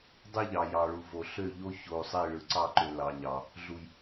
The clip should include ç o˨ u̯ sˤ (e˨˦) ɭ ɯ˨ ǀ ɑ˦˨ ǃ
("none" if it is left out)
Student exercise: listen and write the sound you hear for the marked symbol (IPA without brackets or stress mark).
e˦˨